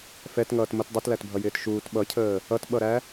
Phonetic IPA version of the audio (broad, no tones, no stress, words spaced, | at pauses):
fɛtŋʌːt mʊt dˤitlætbʱʌjɪːt ʃuːt ɓʌcʰəː | ʌtɓʌɾæ